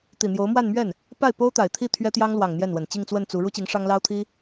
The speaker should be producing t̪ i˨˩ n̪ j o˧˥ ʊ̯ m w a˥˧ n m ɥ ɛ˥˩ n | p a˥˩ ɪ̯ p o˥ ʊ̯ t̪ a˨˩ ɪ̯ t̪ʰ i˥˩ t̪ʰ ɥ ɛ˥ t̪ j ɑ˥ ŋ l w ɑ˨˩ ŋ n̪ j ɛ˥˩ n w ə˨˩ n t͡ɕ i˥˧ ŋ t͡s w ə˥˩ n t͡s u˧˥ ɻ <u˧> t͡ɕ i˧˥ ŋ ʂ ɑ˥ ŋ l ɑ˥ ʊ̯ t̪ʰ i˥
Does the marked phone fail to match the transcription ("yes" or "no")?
yes